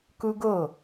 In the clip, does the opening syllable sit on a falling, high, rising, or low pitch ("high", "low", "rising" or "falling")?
high